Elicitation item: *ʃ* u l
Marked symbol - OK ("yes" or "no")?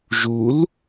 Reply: no